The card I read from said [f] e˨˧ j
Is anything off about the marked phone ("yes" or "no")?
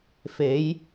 no